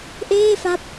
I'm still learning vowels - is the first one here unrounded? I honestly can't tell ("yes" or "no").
yes